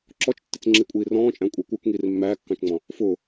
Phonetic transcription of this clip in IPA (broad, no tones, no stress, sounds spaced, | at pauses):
ǁ ɔ t͡ʃ tː ɪ t͡s ŋ͡ǁ i kʷʼ iː r ɔ̃ː t͡ʃʼ æ̃ kʷʼ ɛ kʷ ə˞ k ŋ iː r mː æː kː ɑ̃ t͡ʃ ŋ͡m ɔ̃ | f ʊː